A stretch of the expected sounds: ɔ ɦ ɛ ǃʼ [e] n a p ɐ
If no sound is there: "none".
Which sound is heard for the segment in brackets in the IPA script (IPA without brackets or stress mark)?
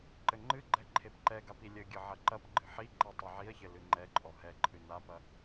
ɨ